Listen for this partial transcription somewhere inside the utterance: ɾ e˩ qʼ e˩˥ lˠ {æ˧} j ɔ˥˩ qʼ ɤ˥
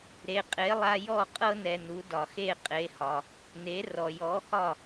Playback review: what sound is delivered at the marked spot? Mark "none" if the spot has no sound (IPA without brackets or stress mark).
a˧